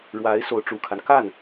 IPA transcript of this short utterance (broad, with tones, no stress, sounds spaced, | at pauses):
ɻ w a˧˥ ɪ̯ s o˧˥ ʊ̯ ʈ͡ʂ u˨˩ kʰ a˦ n k a˥˩ n